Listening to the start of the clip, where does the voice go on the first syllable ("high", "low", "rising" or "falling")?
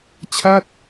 falling